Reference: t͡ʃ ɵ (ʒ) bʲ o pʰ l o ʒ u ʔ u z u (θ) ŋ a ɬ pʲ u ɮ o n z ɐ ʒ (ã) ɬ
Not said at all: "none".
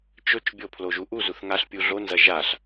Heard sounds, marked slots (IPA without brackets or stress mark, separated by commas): t͡ʃ, θ, a